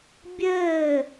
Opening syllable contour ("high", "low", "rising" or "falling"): falling